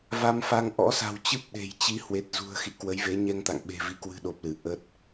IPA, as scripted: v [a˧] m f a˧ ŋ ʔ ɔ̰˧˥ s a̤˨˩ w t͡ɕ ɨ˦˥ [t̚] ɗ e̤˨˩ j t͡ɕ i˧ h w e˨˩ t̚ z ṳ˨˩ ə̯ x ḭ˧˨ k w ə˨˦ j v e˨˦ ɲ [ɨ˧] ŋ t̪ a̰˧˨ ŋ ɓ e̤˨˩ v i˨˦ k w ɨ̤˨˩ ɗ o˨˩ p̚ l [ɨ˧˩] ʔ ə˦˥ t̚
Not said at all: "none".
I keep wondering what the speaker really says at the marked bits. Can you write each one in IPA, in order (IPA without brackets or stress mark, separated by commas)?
a˧, p̚, ɛ˧, ɨ˧˩